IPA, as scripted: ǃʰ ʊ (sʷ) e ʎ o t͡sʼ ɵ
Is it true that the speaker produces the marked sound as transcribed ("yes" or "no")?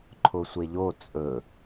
yes